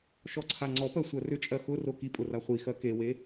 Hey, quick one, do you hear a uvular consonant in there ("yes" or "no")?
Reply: yes